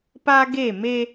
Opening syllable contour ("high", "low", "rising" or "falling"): high